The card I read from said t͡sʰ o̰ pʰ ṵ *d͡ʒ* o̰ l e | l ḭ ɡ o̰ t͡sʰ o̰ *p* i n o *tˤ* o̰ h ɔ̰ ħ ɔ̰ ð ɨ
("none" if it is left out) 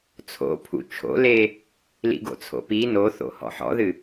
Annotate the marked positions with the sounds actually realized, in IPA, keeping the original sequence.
t͡ʃʰ, p, θ

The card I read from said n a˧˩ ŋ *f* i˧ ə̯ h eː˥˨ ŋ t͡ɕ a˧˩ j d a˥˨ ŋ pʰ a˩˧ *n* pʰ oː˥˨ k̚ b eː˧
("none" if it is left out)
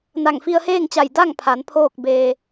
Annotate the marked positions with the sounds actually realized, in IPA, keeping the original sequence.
f, n

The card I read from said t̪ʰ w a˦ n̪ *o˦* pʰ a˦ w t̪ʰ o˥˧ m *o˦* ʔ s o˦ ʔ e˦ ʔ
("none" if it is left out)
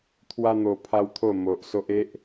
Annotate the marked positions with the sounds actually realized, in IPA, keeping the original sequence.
o˧, o˨

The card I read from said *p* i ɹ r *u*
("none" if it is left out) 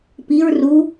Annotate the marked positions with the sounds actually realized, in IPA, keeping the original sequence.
p, u

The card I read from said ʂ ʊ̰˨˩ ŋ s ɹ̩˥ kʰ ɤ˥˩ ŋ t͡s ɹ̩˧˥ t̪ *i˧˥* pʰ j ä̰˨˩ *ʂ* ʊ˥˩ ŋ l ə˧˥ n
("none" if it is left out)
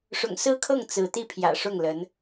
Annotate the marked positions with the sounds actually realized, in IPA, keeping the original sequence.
i˥˩, ʂ

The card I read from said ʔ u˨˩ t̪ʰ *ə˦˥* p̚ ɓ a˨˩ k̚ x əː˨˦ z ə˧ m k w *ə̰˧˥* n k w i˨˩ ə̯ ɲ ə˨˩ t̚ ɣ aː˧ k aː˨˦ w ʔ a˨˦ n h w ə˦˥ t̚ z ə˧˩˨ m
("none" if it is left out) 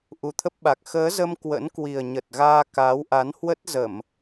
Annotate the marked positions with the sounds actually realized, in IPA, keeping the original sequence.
ə˦˥, ə̰˧˥

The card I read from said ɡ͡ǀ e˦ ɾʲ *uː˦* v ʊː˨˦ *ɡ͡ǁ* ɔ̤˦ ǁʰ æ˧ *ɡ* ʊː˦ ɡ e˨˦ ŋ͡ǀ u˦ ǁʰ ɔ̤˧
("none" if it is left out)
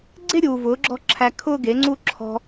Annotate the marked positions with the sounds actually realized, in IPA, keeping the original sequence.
uː˨, ɡ͡ǁ, kʰ

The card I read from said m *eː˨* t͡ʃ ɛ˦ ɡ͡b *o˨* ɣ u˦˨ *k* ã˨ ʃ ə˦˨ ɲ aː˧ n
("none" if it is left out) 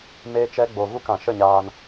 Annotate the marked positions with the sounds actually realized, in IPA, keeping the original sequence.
eː˦, o˧, k

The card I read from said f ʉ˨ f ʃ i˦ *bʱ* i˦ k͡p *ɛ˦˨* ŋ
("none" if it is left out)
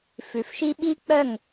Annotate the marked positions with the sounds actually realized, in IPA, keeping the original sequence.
ɓ, œ˦˨

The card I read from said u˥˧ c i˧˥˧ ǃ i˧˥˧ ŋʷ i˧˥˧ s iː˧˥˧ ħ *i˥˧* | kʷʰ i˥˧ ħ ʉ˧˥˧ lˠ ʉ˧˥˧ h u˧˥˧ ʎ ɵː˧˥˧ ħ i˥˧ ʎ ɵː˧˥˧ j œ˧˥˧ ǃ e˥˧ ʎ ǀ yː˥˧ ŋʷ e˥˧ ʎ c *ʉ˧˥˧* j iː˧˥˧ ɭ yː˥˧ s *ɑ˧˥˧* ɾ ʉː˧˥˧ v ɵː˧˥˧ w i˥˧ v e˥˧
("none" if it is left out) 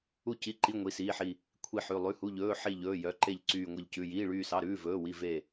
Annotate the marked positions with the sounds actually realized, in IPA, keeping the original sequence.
i˥˧, ʉ˧˥˧, ɑ˧˥˧

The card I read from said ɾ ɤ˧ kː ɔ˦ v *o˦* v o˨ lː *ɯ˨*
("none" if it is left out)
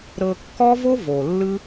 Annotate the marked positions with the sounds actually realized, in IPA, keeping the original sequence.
o˦, ɯ˦

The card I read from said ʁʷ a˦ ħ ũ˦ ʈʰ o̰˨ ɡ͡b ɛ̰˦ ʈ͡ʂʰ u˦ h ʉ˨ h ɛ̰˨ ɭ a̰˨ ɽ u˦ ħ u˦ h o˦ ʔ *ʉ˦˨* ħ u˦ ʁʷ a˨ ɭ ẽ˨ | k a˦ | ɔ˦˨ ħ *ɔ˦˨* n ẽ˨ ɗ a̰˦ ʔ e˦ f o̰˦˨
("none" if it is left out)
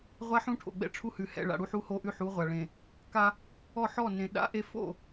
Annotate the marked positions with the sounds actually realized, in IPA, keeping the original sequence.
ʉ˦˨, ɔ˦˨

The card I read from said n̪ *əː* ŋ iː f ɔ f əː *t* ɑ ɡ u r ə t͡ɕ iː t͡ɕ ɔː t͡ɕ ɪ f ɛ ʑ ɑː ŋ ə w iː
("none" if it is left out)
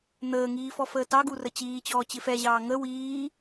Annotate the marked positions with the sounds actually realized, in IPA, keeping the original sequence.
əː, t

